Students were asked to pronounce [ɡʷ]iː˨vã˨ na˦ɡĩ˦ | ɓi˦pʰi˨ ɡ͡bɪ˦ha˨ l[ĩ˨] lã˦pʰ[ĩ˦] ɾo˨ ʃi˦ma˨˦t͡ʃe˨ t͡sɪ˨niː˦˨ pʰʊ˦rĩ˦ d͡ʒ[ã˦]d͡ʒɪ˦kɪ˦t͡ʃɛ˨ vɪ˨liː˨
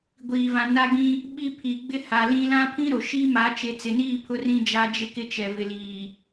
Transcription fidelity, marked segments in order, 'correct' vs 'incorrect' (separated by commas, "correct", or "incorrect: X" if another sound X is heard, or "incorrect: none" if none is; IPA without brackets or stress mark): correct, incorrect: ĩ˦, correct, incorrect: a˦